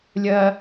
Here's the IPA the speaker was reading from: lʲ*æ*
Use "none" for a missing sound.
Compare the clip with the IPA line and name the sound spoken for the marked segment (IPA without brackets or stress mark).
ɜ